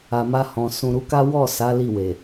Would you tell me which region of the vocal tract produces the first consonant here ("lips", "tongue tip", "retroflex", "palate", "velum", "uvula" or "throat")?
lips